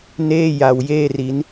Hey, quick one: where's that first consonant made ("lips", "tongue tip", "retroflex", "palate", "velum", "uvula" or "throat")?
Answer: tongue tip